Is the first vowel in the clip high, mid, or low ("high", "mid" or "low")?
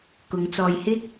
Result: high